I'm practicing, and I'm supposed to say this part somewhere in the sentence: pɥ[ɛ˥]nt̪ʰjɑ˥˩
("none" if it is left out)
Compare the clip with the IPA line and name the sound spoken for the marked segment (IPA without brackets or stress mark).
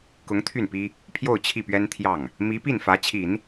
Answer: ɛ˥